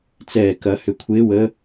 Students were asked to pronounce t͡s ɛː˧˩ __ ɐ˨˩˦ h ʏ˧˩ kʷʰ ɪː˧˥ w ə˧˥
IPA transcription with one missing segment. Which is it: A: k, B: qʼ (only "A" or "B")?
A